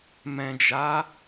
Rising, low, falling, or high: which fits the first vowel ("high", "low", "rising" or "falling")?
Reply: low